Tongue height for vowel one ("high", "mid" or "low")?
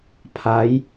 low